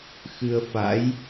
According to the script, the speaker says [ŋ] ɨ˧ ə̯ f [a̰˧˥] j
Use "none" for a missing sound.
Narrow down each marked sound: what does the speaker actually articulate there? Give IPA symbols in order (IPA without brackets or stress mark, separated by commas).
x, a̰˧˥